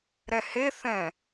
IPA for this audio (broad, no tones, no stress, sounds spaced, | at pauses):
ɾ ɛ h e θ ɛ̃